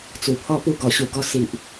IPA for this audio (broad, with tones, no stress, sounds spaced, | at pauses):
t͡s u˨˩ pʰ ɔ˧ p u˧ ɡ ɔ˨˩ ɕ u˧ ɡ ɔ˧ s i˨ ʔ